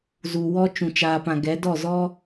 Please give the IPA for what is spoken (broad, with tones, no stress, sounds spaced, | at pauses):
z u˨ w ɔ˧ t͡ʃ ũ˨ t͡ʃ aː˨ p ã˨ ɡ ɛ˨˦ d ɔ˦˨ z ɔ˦